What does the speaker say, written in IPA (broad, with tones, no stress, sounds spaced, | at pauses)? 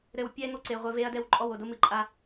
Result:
ɾ ɘ˨ w pʲ ɛ˦ ŋ o˦ ǀ e˨ ʁʷ ɘ˦ v e˦ ɐ̯ d ɛ˦ w ǃʼ ɔ˦˨ w o˨ d o˦ m ɨ˨ ǃʼ a˦